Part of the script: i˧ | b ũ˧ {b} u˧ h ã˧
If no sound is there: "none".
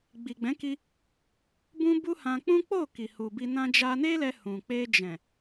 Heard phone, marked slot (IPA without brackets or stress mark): b